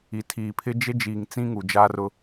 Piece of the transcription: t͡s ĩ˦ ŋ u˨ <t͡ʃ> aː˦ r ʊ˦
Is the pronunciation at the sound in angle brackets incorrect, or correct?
incorrect